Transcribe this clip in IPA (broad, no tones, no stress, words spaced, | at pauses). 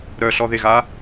ɾœɬɔðeɣa